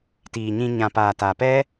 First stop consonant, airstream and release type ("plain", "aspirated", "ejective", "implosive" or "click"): plain